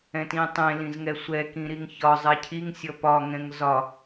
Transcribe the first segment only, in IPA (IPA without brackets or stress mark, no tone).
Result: ɛ̃